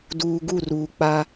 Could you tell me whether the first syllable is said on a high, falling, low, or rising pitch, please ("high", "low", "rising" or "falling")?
low